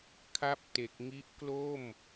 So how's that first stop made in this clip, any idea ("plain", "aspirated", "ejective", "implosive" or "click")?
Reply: aspirated